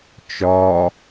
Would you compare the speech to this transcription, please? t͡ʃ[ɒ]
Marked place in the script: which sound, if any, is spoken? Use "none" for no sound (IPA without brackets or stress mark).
ɒ